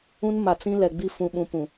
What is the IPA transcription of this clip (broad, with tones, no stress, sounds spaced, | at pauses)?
ũ˦ n m a˨ t͡s ĩ˦ l ɛ˨ ɡ͡b i˦ f ũ˨ ɓ ũ˨ p ũ˨